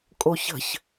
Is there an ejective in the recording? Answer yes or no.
yes